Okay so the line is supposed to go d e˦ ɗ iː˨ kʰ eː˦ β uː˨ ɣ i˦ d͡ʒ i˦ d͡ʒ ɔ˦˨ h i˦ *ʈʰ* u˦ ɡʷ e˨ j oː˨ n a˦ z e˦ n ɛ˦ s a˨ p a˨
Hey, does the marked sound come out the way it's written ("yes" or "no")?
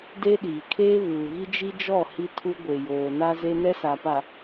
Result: no